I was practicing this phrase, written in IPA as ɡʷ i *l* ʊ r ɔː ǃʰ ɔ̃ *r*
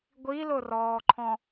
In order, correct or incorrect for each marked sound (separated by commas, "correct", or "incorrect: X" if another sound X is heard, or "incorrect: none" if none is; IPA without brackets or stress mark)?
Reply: correct, incorrect: none